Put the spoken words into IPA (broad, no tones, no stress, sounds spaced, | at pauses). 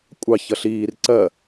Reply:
kʷʼ ɑ ç ʌ ɬ iː r ǀ ɜ